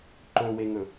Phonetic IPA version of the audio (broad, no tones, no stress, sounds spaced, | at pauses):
ǃ ɵ w e ŋ ɵ